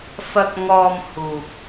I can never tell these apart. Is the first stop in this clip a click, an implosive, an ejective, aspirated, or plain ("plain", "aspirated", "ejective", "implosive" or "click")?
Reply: plain